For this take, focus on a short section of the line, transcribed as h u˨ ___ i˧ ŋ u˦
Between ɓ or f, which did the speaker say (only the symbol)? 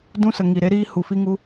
f